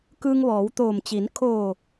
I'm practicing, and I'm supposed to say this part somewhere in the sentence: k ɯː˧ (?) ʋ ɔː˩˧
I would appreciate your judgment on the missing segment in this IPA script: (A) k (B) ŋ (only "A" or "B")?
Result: B